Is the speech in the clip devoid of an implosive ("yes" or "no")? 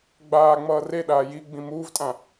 no